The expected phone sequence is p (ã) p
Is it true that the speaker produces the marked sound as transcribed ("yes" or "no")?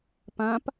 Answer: yes